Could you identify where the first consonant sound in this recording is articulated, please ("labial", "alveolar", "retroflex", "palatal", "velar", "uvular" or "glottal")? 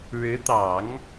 retroflex